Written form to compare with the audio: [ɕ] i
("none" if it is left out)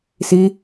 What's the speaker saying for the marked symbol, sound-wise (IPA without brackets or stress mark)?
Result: s